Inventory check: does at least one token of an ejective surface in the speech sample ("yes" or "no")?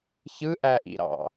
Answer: no